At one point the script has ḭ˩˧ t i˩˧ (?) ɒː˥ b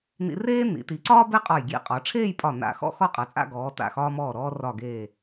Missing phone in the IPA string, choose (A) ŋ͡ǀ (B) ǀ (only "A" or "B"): B